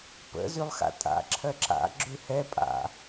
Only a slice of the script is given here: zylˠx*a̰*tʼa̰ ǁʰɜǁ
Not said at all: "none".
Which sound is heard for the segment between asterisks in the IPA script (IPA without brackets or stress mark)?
a̰